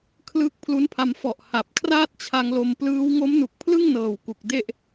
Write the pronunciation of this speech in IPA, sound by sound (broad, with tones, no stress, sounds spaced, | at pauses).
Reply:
kʰ l ɯ˦˥ k̚ pʰ l u˦˥ n pʰ a˧ m f ɔ˨˩ ʔ h a˨˩ p̚ kʰ r aː˥˩ t̚ t͡ɕʰ a˧ ŋ l o˧ m p l ɯː˦˥ w ŋ o˦˥ m n u˨˩ k̚ pʰ l ɯ˥˩ ŋ n ɤː˨˩ w k u˨˩ k̚ d e˥˩ ʔ